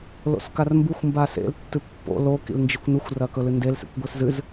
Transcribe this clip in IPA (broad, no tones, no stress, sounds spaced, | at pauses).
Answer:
l o̰ s k a r m b u xʷ m b a s ḛ l tː ɨ pː o̰ l o k ḭ l n d͡ʒ ɨ kʷ n u xʷ r ɐ k ɵ l ɨ n d e l s ḛ kʷ ɡʷ i s z ɨ z